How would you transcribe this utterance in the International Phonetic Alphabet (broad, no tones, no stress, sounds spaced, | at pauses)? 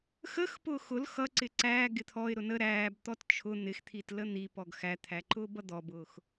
x ə x p ʊː x ʊ l x ʌ ǀ ɪ ǀ æ ɡ ɪ t̪ʰ ɔ ɪ̯ ɾ ʊ n ə ɾ æː b t̪ ɔ t t͡ʃʰ ʊ n̪ ɪ x t̪ʰ i t l ə n̪ i p ɔ ɡ x æ t̪ʰ æ ǃ ʊː b ʌ d̪ ɔ b ʊː x